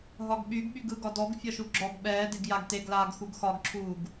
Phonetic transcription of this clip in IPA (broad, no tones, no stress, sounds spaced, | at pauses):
ɦ ɒ ɡ ɓ y ɡ ɓ y ɡ ɯ ɡ ɒ d ɔ ɡ fʲ ɒ ʃ u ɡ͡ǁ ɔ ɡ ɓ ɛː d e ɡ j a ɡ t e ɡ l aː ɡ x u ɡ x ɒ ɡ ǁʰ uː ɡ